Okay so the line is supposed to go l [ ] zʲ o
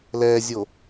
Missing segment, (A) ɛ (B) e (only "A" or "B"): A